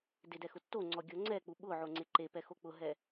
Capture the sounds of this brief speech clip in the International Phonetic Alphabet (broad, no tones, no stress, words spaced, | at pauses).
dɪdɛ xʊtːoŋ͡ǀɔ ɡʲoŋ͡ǀɛk͡pu ɓʊʕo ŋ͡ǀeǃepɛ xok͡pʊɦɛ